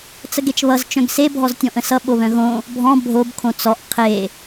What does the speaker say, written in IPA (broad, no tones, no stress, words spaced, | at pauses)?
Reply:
t͡səɡet͡ʃβʌz t͡ʃœ̃ɡse bʱɔztʲɔ̃ʔə̃sʌ ɓoβœ̃ɣõ | bʱɔ̃ bʱob kʰõt͡sɔʔ qʰe